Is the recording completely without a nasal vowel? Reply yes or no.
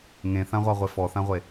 no